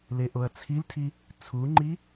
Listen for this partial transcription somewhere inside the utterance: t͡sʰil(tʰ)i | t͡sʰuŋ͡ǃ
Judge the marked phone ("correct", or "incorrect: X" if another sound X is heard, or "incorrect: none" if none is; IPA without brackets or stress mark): correct